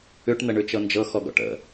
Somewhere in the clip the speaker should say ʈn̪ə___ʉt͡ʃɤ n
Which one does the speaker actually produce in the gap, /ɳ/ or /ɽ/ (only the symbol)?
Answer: ɳ